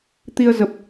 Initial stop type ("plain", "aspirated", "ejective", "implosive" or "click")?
plain